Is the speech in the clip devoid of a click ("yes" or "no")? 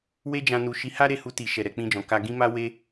yes